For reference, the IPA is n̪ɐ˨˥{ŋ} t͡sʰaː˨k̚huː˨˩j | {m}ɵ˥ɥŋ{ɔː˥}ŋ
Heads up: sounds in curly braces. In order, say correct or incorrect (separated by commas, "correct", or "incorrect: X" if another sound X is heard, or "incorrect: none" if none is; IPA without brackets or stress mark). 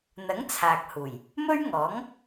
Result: correct, correct, incorrect: ɔː˨˥